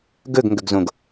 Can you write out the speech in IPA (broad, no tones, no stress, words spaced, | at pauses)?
ɡɵɡŋɡɵɡzõɡ